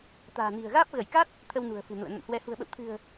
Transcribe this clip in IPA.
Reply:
t̪a̤ː˨˩ni̤˨˩ə̯ɣaː˦˥p̚ ɣə˧˩jka˦˥t̚ | t̪ʰə˧wnṳ˨˩ə̯ fɨ̤˨˩nṵ˧˨ə̯ nə̰˧˨nhwɛ˨˦ hṳ˨˩ə̯ɓə̰˧˨wt̪ʰɨ̤˨˩ə̯

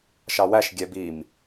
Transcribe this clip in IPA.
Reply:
ʃɑwæʃ ɡʲɛbim

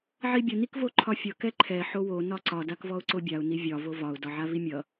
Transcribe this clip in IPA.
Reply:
ʕibʲʌ nikvoǃʰɒfʲʌ kɛǃʰɛ ħowo nɒǀɒ dakvɔʊ̯ǀobʲaʊ̯ nivʲɒ vovɒʊ̯ dɒʕavimʲʌ

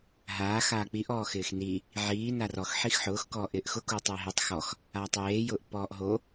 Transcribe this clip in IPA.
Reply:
ɦaː xaːk͡piʔ ɔːxɪːxni | ʕiː narɔx ħixħʊːx kɔːʔɪːʔxʊ kutˤɛɦetˤ xɔx | aːtˤjeː jʊːʔpːɔːʔɦo

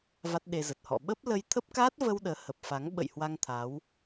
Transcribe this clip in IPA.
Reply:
va˦˥t̚ɗe˧zə˨˩t̚hɔ̰˧˨ ɓə˦˥p̚lə˧j t̪ʰə˦˥p̚kaː˦˥t̚və˧w ɗəː˨˦hə˨˩p̚fa˨˦ŋ ɓə̰˧˨j hwa˧ŋt̪ʰa˨˦w

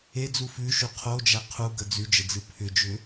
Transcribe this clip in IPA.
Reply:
ed͡zu fʉʃʉ qʰod͡ʒæ qʰuɡə d͡zʉd͡ʒəd͡zɨ pʰʏd͡ʒʏ

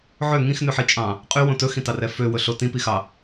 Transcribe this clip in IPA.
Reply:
ʕø ŋĩxnʉħit͡ʃʼɑ̃ | qʼywõ tɵxĩtɑrɛ føwɵɬo tĩpixɑ

